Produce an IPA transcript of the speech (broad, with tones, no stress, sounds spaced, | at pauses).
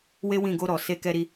w e˦ w ĩ˦˨ ɡ o˧ ɾ ɔ˨ s e˧ k ɛ˧ ɾ i˧